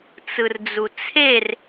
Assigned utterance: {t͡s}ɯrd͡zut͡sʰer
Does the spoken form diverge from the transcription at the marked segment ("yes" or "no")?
no